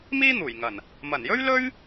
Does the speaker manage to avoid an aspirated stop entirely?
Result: yes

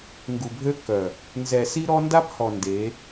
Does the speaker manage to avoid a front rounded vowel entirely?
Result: no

